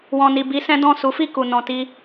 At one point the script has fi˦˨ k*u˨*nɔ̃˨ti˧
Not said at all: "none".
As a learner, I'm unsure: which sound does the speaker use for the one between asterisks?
u˨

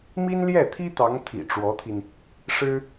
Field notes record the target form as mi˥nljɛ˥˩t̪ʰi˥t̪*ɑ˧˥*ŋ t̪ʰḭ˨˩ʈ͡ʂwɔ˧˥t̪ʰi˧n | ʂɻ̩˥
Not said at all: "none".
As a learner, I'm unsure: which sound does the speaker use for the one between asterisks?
ɑ˧˥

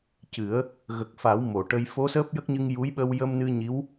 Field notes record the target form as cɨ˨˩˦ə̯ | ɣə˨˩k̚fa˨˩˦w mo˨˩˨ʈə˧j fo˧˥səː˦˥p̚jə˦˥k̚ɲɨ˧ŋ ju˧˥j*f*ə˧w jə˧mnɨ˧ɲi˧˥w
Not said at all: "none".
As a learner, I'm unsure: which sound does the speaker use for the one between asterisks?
ɓ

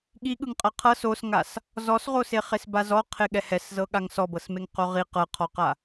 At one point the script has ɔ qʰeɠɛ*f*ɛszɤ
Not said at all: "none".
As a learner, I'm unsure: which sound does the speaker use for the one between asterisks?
h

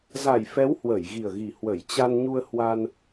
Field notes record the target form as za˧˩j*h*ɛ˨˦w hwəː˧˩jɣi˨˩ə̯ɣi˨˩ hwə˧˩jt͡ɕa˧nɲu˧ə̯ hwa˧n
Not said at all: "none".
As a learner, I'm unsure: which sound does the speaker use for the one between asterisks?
f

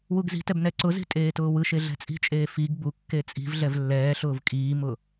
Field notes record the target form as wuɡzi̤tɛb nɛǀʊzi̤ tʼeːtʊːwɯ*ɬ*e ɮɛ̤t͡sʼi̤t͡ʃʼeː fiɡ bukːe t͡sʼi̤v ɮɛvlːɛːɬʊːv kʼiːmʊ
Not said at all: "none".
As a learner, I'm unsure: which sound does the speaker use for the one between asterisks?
ʃ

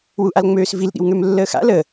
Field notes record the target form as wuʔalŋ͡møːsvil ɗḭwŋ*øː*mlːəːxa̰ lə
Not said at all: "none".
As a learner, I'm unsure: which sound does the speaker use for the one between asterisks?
ø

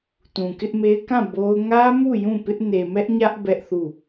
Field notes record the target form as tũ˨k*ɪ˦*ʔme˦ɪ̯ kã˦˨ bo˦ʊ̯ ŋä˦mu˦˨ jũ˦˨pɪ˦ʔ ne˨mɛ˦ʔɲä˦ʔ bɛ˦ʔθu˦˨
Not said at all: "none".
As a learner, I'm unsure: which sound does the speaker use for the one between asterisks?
ɪ˦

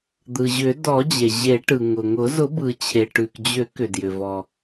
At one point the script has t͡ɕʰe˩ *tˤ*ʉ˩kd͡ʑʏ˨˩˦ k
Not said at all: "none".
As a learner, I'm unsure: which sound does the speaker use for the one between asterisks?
ʈ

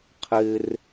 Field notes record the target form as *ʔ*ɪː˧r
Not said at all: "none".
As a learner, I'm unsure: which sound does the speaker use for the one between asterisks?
qʰ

